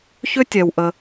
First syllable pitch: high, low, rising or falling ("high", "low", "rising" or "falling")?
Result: high